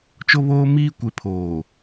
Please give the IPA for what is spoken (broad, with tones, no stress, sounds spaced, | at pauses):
t͡ʃ o˦ β oː˦ m iː˦ kʷ e˨˦ pʰ oː˨